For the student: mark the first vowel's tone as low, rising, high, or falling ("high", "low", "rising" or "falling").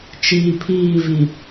low